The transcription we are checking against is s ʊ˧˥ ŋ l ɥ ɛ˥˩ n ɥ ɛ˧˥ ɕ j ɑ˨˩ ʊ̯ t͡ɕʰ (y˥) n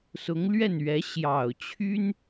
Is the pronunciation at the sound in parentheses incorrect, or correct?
correct